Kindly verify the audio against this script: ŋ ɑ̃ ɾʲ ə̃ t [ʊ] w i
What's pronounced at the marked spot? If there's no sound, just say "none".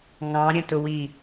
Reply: ʊ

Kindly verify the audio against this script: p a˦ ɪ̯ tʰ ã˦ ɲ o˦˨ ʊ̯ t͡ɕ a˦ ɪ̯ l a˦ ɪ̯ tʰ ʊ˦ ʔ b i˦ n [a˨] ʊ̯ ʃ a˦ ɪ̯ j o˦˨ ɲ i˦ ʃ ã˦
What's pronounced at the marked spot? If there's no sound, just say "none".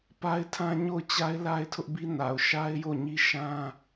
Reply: a˨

